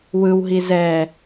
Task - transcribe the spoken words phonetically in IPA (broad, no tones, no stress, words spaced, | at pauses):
wɯwɦi zɛ